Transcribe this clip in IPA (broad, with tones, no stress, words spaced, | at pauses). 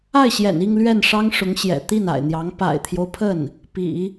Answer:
a˥˩ɪ̯ɕjɛ̰˨˩ni˥˧ŋ lɥɛ˥˩nʂɑ˥ŋʂʊ˧˥ŋ ɕjɛ̰˨˩t̪i˥˩na̰˨˩ɪ̯n̪jɑ˧˥ŋ pa̰˨˩ɪ̯t̪ʰjo˦ʊ̯pʰə˥˩n | pḭ˨˩˦